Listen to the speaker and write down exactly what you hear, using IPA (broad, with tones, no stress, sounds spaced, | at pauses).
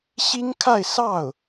ɕ i˥ ŋ kʰ a˥˧ ɪ̯ s ɑ˥˩ ʊ̯